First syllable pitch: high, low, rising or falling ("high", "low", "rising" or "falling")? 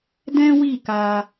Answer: high